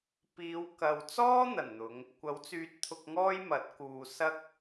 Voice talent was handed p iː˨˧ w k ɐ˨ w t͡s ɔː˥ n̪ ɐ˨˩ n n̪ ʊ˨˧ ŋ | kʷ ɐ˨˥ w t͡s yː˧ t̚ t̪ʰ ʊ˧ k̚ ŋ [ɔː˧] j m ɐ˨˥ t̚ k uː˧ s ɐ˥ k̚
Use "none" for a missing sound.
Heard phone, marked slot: ɔː˥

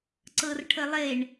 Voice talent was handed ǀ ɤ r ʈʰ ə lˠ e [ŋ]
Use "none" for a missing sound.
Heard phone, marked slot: ɳ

